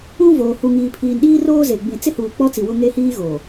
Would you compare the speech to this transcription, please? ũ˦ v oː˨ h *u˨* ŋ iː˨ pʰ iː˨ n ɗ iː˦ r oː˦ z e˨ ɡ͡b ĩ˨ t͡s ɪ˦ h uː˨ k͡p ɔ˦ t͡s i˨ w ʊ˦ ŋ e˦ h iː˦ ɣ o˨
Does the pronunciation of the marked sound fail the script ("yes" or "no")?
no